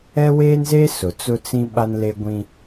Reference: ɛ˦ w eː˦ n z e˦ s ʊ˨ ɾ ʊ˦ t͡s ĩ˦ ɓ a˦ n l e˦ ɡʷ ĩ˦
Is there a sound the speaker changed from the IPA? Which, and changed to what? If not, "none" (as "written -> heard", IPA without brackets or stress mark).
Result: ɾ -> t͡s